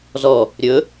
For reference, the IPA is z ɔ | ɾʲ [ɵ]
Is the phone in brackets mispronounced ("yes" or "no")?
no